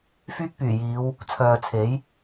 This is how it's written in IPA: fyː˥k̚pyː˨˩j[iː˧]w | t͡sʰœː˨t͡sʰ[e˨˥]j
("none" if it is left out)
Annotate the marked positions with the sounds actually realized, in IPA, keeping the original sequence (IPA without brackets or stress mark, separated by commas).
iː˨˧, e˨˥